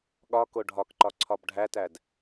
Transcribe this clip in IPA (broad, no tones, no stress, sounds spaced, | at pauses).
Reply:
ɠ ɒ k o ɖʱ ɒ k ǃ ɒ ǀʰ ɒ b ɖʱ æ t æ d